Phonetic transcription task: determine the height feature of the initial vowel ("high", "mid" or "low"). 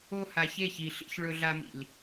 mid